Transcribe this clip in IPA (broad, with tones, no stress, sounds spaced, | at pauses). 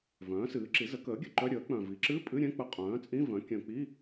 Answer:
v œ̃ː˩˥ s ɨː˩˥ ǁ i˩˥ z ə˩˥ k əː˩˥ ɡʲ ɘ˨˩ ǃ œ˧˥˧ ɾʲ əː˩˥ k͡p œ̃˨˩ v i˩˥ ǁ ɨ˧˥˧ pʼ ɨ˧˥˧ ɾʲ ɛ̃˧˥˧ k͡p ə˧˥˧ qʼ œ̃ː˩˥ t͡sʼ ĩ˧˥˧ v œ̃˩˥ kʲ œ̃˨˩ k͡p i˧˥˧